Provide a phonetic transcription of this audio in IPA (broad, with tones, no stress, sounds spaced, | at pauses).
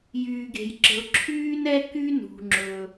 j yː˩ ɡ e̤˩ j ǁ ə̤˩ ʊ̯ ǁʰ yː˥ n ɛ˥ k y˥ n ṳ˩ ŋ͡ǁ ɵ˩